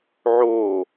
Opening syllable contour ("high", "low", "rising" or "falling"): falling